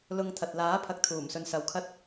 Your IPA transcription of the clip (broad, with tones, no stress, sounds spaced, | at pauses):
l ʊ˧ ŋ t̪ʰ ɐ˨ t̚ l aː˨˥ pʰ ɐ˨˥ k̚ t̪ʰ uː˨˩ m s ɵ˧ n s ɐ˨˧ w kʰ ɐ˥ t̚